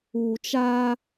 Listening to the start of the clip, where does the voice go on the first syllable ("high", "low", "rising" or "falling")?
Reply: low